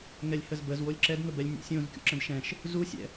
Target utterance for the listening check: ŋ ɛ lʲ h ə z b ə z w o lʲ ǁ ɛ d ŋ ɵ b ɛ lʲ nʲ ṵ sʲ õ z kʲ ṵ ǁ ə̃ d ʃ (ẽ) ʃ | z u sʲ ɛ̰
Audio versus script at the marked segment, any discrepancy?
yes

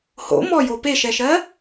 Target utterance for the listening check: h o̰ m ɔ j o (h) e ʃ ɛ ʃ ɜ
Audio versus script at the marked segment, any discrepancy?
yes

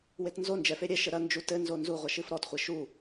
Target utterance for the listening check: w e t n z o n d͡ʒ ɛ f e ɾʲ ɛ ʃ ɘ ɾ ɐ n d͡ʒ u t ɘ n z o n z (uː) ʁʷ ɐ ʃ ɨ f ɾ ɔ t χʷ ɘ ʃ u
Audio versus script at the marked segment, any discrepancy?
yes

